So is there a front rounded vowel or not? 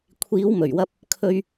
no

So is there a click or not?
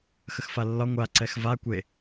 yes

